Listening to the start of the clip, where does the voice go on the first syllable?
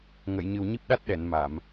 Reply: low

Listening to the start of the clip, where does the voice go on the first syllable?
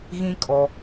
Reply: high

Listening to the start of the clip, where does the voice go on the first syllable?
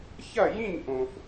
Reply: falling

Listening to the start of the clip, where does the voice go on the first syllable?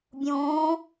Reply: rising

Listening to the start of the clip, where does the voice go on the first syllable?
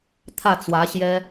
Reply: falling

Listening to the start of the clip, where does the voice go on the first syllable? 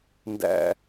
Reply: low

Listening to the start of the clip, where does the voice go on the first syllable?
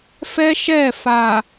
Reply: high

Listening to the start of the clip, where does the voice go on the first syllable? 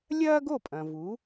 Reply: high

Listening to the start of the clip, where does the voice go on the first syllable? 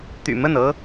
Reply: low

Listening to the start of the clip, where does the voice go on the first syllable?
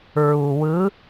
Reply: low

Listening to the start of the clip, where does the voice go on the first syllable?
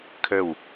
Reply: falling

